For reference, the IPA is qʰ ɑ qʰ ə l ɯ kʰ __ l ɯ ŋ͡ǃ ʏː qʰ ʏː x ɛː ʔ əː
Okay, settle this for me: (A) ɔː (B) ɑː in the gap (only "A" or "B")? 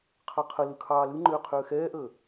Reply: B